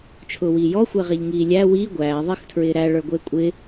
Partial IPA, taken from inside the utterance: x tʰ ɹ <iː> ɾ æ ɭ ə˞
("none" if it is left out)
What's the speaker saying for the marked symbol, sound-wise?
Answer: ɪː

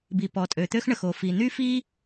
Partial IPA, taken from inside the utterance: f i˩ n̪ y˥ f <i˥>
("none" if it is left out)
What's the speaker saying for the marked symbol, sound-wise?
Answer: i˥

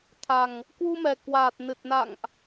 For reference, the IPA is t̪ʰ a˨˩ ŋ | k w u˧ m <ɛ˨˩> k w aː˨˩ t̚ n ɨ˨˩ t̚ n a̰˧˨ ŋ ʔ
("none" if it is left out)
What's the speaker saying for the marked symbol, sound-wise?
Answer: ɛ˨˩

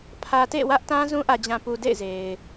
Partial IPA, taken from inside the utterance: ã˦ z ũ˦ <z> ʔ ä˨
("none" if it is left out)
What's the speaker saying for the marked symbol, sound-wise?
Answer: none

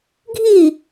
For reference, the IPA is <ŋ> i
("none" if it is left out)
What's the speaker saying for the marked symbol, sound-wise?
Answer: ɡʱ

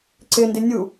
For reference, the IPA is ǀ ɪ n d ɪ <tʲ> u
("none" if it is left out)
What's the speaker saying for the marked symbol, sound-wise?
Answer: nʲ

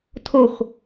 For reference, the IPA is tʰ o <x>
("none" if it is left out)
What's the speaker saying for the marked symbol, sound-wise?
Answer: x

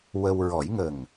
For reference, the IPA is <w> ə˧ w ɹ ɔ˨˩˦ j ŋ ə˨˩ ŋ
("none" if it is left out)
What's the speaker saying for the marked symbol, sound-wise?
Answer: w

